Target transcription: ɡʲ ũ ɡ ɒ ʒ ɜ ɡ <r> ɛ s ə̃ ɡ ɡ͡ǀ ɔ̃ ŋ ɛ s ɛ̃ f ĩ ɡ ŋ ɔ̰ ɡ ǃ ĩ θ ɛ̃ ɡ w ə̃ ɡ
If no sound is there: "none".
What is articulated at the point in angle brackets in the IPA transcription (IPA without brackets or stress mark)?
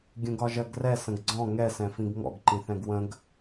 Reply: r